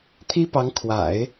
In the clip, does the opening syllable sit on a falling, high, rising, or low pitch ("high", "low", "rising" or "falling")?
high